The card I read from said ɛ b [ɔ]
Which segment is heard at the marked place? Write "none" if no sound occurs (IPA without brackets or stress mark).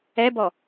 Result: ɔ